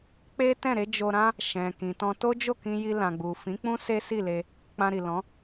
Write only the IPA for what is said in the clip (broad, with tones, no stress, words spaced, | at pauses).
k͡pe˦tɛ̃˦˨ɾe˨˦ d͡ʒo˧ɾã˦ | ʃɛ̃˨ kĩ˨tɔ̃˧ to˦d͡ʒo˦˨kĩ˧ji˧ lã˨ɡ͡bu˨ fĩ˨˦k͡pũ˦ se˦si˦˨ le˧ | k͡pã˧ɾi˨lɔ̃˨˦